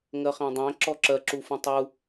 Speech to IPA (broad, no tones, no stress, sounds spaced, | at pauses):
ŋ ɜ χ æ̃ dˤ æ̃ ǁ ɔ ǁ ɜ ǁ u f ũ tˤ u